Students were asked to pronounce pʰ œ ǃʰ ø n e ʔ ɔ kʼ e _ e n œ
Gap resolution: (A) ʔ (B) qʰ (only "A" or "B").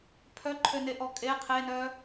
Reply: B